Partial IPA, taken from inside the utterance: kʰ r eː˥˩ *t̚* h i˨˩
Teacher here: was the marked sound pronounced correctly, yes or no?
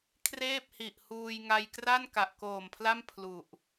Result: no